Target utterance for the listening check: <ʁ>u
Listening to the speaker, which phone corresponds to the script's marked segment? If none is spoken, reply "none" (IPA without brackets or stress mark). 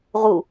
ʁ